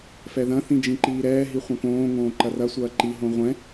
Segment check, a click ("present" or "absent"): present